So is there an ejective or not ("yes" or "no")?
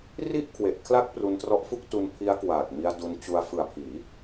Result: no